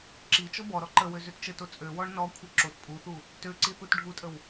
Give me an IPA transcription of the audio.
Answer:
ǁ i t͡ʃ ɔ b ɔ ɾ ɔ ǃ ə w ø z ø t t͡ʃ ə t o t͡sʼ ø w ɔ ɳ n ɔ kʷʰ i ǁ o t pʼ u θ u | t ø ǀ i θ u t ɖʱ u tʼ ə w

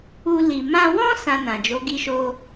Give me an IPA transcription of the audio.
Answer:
u˧ l i˨ m ã˧ w ɔ̃˦ s ã˧ n ã˨ d͡ʒ o˨˦ ɡ i˧ ʃ o˧

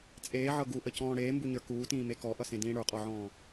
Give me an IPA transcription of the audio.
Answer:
t͡sʼ eː ʕ ɤ ɡ u ʔ ə c ɔ̃ː ɽ eː m b u ɲ ə˞ k uː t ĩː m e k ɔ ʔ ʌ s ẽ d ĩː ɽ ə˞ qʼ ɔ ʕ ɔ̃ː

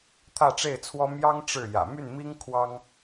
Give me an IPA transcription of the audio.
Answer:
t̪ʰ ä˥˧ ʈ͡ʂ e˥˩ ɪ̯ t͡sʰ w ɔ˥ m j ɑ˥ ŋ ʈ͡ʂ ɻ̩˥˩ j ä̰˨˩ m y˥˩ n m i˥ ŋ kʰ w ɑ˥ ŋ

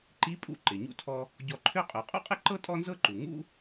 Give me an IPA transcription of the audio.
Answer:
ǃ i˧˥ pʼ ṵ˧ ǃ ɪ˩ ɲ ṵ˧ tʰ ɔ˧ | ɟ ɔ˧ ǃʰ ø˥ qʼ ø˩˧ qʼ ṵ˥ qʼ ɪ˥ ǃ ɤ˥ tʼ ɔ˥ n z ɤ˥ ǃ u˩ ŋ ṵ˥

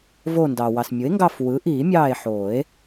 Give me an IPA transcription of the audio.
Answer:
v oː˦˨ n d ɑː˩ w ɑ˩ s mʲ ɯ˩˥ e̯ ŋ ɡ ɑ˦˨ f w ɯ˩˥ ʔ iː˨˩˦ mʲ ɑː˦˨ e̯ ħ oː˨˩˦ e̯

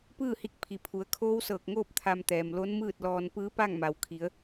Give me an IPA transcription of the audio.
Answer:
p ɯː˥˨ h i˧ k̚ pʰ i˩˧ pʰ u˩˧ ə̯ kʰ oː˧˥ w s ɤː˧˩ k̚ ŋ oː˥˨ p̚ t̪ʰ a˧ m t̪ ɛː˩ m l o˧˥ n m ɯː˥˨ t̚ l ɔː˧ n p ɯː˧˥ p a˥˨ ŋ m a˩˧ w kʰ i˩˧ ə̯

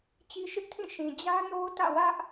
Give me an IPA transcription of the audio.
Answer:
t͡ɕ i˦ ʃ ɪ˦ ʔ tʰ ĩ˦˨ ʃ ĩ˨ d͡ʑ ä˦ n o˦ ʊ̯ t ä̰˦˨ w ä˦ ʔ

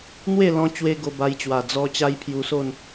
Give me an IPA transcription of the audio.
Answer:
n̪ w e˥˧ l ɔ̃˧ t͡ɕ w e˧ ɡ o˧ b a˧ j t͡ɕ w a˨˩ d͡z ɔ˧ t͡ɕ a˦ j pʰ j u˧ s o˥˧ n

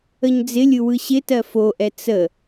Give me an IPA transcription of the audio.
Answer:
ə ɲ d͡z ɪ lʲ ɯ w ɯ ɕ ɪ t ɜ f o ʔ ɛ t͡s ə

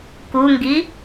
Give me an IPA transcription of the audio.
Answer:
k u ŋ ɡ i

